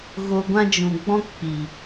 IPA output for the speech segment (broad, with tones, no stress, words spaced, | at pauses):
ɣo˧ ɡʷã˧d͡ʒũ˨ɡ͡bɔ̃˧k k͡pi˨